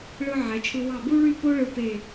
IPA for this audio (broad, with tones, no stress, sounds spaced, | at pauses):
ɭ ɯ˧ ʕ æ˩˧ t͡ʃʰ ɯ˧ w ɑ˧˩ b u˥ ɭ y˥˧ p o˥ ɭ ɯ˧ p e˧˩